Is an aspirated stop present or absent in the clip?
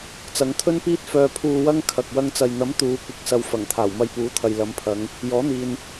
present